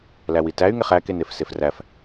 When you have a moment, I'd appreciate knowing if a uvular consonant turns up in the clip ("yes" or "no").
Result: yes